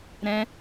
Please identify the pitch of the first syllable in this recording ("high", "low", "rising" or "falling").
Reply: high